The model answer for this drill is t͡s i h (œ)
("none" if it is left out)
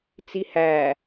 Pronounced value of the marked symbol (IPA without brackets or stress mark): æ